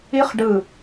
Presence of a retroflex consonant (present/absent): present